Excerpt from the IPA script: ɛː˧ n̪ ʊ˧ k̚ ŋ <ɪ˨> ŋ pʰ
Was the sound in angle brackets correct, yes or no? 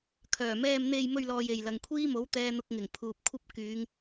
no